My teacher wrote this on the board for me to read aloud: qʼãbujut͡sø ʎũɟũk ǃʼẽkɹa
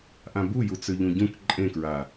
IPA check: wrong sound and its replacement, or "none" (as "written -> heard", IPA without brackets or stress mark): qʼ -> ʔ